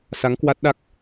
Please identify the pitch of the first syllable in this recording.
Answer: rising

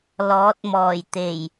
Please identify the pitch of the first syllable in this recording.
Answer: rising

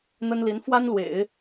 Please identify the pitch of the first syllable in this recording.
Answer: high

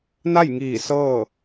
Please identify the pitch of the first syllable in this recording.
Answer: falling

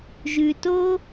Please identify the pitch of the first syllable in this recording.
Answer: low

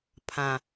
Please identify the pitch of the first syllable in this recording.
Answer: low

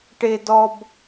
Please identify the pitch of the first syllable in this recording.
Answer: high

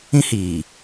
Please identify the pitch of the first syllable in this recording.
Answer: high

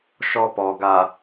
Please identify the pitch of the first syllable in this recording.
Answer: high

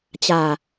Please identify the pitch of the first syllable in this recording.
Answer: low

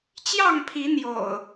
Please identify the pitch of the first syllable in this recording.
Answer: falling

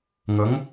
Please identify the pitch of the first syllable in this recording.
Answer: rising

